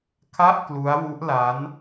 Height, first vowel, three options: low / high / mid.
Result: low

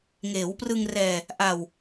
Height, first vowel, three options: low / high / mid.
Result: mid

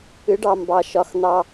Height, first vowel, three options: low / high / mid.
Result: high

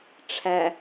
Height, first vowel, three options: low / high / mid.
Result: low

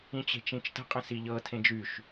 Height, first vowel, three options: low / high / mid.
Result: high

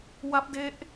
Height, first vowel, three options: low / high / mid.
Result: low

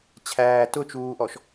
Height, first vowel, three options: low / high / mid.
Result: low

